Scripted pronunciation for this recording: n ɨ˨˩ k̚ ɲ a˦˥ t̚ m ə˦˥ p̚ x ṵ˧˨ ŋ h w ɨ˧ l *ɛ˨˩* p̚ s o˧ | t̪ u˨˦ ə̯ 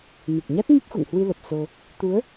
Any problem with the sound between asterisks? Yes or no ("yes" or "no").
yes